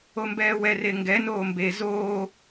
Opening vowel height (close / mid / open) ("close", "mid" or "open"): mid